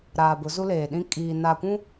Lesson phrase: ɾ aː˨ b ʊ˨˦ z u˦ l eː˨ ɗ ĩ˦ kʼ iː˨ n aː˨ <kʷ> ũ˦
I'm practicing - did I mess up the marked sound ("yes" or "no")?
no